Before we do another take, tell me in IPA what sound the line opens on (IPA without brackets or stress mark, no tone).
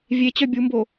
vʲ